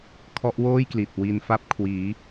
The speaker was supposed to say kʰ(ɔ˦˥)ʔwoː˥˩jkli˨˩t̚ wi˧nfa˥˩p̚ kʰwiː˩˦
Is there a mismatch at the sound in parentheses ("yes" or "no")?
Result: no